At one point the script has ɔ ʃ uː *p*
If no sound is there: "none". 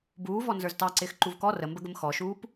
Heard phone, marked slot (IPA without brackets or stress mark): p